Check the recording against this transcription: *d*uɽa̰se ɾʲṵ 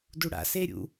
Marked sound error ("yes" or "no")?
no